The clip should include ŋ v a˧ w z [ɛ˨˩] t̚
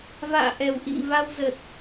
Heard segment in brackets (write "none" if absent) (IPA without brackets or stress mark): ə˨˩